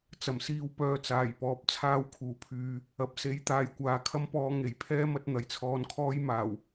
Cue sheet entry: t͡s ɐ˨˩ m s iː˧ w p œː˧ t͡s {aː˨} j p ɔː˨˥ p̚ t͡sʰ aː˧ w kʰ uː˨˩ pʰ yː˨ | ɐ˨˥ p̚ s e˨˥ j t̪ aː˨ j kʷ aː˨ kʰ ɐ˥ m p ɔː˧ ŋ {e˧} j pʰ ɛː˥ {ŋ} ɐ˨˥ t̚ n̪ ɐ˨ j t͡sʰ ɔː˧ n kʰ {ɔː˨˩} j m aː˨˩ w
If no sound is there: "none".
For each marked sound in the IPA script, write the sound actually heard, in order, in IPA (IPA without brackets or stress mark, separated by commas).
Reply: aː˨˩, e˨˩, m, ɔː˥